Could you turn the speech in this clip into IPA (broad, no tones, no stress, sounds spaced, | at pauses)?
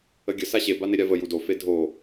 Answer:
ə ɡʲ ə s a ɕ e b a n e ɾʲ a v ə j u d o f e dʱ o